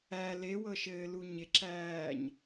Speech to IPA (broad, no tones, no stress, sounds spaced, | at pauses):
æ l e w ɤ ʃ ɘː l u ɲ ɪ ǁ æː ɲ